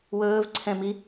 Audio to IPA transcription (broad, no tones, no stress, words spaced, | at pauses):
wɵːv ǀʰɛ̃mi